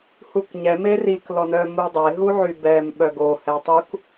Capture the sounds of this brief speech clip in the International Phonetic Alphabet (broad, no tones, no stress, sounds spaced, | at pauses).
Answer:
h u k ɲ ɛ m e r i k l ɔ n œ m u dˤ e ɦ u ʕ y b ɛ m ɓ œ ɡ o h ɛ tˤ u k